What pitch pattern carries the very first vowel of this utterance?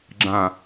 falling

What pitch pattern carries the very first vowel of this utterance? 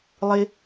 high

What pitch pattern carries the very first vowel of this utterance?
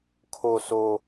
low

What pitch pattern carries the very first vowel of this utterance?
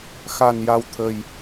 low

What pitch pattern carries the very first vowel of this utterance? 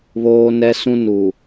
high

